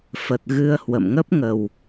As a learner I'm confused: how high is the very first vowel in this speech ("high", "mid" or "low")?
mid